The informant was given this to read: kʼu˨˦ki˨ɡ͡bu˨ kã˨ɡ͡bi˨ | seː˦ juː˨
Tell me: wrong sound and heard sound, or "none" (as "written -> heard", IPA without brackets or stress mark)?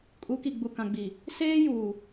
none